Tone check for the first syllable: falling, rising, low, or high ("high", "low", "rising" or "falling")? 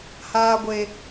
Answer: high